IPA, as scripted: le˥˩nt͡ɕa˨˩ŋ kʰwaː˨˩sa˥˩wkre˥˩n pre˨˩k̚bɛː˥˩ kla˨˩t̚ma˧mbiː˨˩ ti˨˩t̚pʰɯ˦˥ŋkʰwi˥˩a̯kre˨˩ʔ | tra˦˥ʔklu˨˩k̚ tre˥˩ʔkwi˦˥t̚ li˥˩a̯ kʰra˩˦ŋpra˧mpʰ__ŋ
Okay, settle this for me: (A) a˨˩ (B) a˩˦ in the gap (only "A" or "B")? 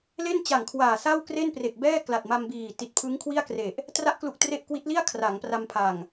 A